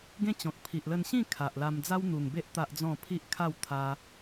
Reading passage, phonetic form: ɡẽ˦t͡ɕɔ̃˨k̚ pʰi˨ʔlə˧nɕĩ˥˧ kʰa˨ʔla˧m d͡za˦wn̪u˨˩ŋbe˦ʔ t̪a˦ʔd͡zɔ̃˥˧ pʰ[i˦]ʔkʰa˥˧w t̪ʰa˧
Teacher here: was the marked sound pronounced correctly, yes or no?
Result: yes